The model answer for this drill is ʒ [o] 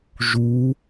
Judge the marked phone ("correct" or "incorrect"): incorrect